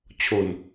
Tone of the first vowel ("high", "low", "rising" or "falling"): low